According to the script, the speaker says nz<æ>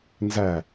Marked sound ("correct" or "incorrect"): correct